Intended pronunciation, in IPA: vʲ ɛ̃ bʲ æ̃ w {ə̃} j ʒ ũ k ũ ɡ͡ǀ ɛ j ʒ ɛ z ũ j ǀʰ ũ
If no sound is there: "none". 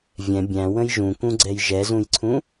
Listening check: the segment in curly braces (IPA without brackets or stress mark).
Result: ə̃